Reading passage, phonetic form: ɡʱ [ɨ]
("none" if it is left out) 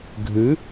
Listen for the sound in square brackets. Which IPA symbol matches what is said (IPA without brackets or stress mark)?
ɨ